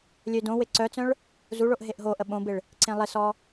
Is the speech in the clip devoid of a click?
no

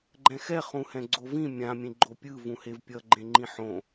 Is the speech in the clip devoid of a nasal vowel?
no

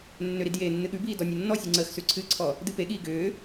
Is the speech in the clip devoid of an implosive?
no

